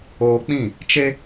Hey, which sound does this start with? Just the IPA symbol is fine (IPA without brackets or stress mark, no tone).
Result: oː